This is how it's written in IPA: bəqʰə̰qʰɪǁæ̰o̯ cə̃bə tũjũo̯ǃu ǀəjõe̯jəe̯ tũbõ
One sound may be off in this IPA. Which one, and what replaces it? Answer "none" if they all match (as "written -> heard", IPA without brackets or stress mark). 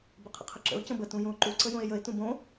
æ̰ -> ə̰